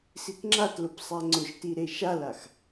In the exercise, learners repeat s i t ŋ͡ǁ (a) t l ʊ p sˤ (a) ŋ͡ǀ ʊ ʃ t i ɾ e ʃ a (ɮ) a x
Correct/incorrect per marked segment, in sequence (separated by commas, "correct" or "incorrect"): correct, incorrect, incorrect